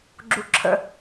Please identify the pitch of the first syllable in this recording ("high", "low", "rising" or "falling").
low